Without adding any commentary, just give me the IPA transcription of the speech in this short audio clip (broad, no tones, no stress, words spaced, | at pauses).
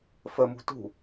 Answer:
fəmṳ tṳ